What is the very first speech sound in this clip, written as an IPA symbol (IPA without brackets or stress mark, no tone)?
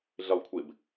ɮ